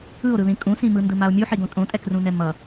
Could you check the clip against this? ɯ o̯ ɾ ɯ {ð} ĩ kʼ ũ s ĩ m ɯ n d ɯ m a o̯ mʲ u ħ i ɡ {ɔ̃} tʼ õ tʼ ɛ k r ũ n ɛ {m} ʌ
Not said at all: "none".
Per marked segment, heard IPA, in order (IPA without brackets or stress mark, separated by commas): ð, õ, m